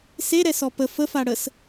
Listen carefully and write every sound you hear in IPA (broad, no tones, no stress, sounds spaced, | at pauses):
s e ɾ ɛ s ɔ p ə f ə f a ɽ ə s